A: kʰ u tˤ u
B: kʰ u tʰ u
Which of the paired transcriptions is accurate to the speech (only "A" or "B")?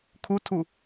B